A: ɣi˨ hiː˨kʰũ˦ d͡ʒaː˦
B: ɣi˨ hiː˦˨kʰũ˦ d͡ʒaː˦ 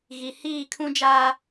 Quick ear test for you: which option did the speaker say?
B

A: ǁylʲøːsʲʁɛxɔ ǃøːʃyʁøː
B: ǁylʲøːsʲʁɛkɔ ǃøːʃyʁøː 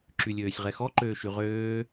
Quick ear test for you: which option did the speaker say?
A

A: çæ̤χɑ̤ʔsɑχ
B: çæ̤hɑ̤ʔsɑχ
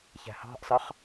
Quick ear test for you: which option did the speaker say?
B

